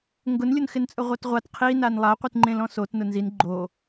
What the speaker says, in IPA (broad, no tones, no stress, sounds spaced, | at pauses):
ŋ ɡ ʊ n lʲ ʊ n x ɪ n t͡sʼ ʊ ʁʷ a t ʁʷ a t qʰ i n a n lˠ a qʷ i t ŋ͡ǃ ẽ l ɔ̃ s o t n ʊ n z i n ɡ͡ǃ o